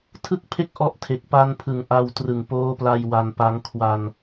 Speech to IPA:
tʰɯ˥˩k̚pʰe˥˩k̚ʔɔ˦˥ʔ tʰe˨˩k̚pa˧n pʰɯ˨˩ŋʔa˧wtrɯ˨˩ŋpoː˦˥ pla˧j wa˧npa˦˥ŋ kʰwa˧n

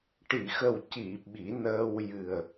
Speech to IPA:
ʈi˨˩˨xə˨˩wci˨˩˨ ɓi˨˩˦nəː˧w jɨ˨˩ə̯

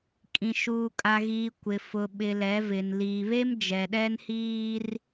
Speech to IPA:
kʼĩ˨ʃuː˨kʼa˨ɣiː˨ kʷɪ˨ fʊ˨ɓɪ˨ lɛ˨˦vɪ˨n liː˨βe˦m d͡ʒɛ˨ɗɛ˦nhiː˦r

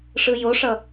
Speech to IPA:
ʂɯjoʂʌ

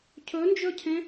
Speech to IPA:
cʰɵnd͡ʒɵcʰẽ

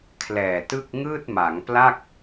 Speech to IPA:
kʰlɛː˨˩tɯ˥˩k̚ ŋɯː˥˩t̚ma˩˦ŋpla˥˩k̚

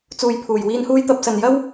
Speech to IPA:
t͡suː˨jpʰuː˨˩j wiː˧nhuː˥jt̪ɐ˧p̚ sɐ˨njɐ˥w

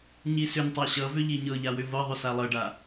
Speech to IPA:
ɲisʏntˤa ɕʌvʏ ʎiɲɤʎa wʏvɤðˤʏ salˠɤɖa

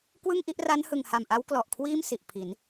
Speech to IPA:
kwɯ˥˩ŋʔi˦˥ʔ ra˦˥nhɯ˨˩ŋha˨˩mʔa˦˥w klɔ˨˩ʔkʰwiː˥˩m si˨˩ʔpʰi˩˦n

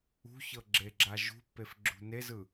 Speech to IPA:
ṳçɤɡ͡ǁeɡ͡ǁa ʒṳpːefɡ͡ǁṳ nezɯ

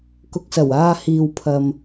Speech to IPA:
kʊ˨k̚sɐ˨˩w aː˧hiː˨w pʰɐ˨m

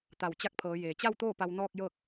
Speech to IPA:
t̪a˧˩wt͡ɕa˧˥k̚pʰɤː˩˧ jeː˩t͡ɕa˥˨wt̪oː˥˨ pa˧wnɔː˥˨k̚ jɤː˥˨k̚

